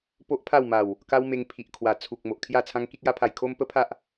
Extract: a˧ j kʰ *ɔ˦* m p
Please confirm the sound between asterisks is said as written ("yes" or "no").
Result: no